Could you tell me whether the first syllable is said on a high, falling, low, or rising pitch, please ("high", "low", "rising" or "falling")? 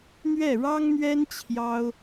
falling